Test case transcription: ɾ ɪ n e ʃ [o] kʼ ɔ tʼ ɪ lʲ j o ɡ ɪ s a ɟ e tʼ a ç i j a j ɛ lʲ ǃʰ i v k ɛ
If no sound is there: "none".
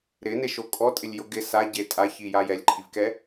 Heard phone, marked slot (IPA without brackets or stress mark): o